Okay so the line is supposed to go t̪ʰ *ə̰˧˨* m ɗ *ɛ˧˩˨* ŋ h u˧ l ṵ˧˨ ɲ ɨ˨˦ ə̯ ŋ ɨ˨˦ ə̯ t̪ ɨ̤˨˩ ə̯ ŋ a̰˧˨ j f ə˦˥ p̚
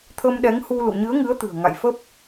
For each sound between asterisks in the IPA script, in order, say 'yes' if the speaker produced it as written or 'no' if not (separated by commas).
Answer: no, no